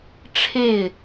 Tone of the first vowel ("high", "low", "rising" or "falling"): falling